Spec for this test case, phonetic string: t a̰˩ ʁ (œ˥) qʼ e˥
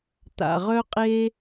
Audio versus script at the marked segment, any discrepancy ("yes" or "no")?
no